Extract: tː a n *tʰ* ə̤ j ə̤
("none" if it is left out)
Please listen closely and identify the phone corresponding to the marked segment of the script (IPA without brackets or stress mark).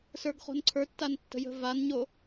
tː